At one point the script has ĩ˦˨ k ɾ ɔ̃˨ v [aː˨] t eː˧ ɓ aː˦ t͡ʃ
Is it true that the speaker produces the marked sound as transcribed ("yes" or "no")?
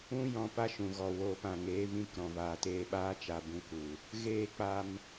yes